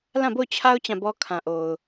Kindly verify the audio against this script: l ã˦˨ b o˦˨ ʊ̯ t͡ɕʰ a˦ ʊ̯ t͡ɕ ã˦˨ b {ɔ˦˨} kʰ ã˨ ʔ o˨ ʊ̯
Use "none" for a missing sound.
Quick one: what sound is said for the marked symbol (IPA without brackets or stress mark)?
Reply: ɔ˦